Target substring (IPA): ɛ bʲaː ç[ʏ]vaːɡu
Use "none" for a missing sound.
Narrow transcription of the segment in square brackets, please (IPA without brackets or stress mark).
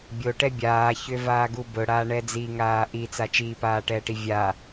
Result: ʏ